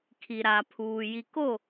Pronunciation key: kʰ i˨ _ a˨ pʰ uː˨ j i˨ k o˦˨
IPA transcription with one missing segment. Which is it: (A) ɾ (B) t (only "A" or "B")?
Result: A